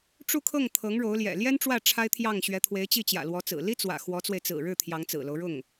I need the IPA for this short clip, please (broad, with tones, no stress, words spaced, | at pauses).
ʈ͡ʂu˥˧kʰɤ˥˩ŋ t̪ʰɤ˧˥ŋɻo˧˥ʊ̯ljɛ̰˨˩ ljɛ˥n ʈ͡ʂwä˥˩ ʈ͡ʂʰa˥ɪ̯t̪ʰjɑ˥˩ŋ ɕɥɛ˧˥t̪ʰwe˧˥ɪ̯t͡ɕi˥˩t͡ɕjä̰˨˩ lwɔ˧˥t͡sɹ̩˨˩ li˥t͡swä̰˨˩ xwɔ˧˥t͡swe˧ɪ̯ t͡sɹ̩˨˩ɻɻ̩˥˩ t̪ʰjɑ˧˥ŋt͡sɹ̩˨˩lo˦ʊ̯ ɻʊ˥˩ŋ